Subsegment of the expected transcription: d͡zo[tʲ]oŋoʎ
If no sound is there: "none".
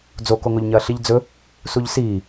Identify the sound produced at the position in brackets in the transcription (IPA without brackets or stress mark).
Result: k